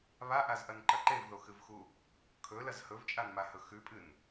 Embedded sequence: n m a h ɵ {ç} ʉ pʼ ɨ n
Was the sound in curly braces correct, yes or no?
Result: no